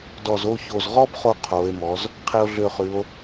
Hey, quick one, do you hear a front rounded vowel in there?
yes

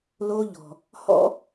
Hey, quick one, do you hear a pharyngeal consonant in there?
no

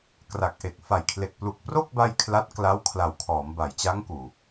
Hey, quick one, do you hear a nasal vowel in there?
no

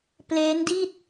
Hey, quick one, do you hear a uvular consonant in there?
no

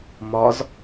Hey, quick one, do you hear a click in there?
no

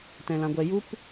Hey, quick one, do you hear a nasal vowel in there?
yes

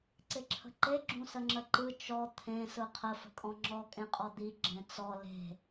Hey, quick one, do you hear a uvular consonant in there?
yes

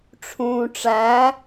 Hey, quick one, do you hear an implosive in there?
no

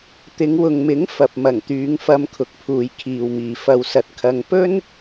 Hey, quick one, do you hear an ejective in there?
no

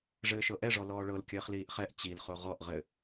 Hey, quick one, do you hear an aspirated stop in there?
no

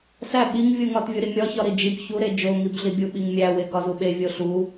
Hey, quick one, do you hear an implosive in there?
yes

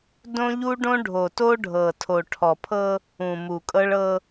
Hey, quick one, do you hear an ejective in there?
yes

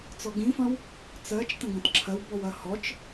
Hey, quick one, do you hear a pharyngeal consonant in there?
no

